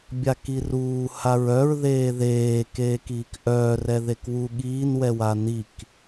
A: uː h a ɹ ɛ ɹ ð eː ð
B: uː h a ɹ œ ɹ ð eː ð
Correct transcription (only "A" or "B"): B